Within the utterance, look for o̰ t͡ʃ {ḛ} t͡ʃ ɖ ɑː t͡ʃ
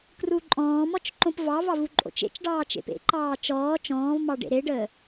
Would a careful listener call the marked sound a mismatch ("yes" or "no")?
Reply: no